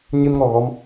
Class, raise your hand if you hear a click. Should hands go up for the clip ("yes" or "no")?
no